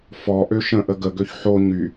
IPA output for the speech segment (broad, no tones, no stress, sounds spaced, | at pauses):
f ɔ ʔ ø ʃ ə̃ ʔ ə ɡ ə ɡ ø ç ħ o ɲ y